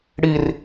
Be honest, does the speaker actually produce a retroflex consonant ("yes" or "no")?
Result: yes